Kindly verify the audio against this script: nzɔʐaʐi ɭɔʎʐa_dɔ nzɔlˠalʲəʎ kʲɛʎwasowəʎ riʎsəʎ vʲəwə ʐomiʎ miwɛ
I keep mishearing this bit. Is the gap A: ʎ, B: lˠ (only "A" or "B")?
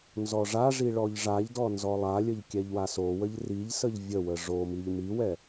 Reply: A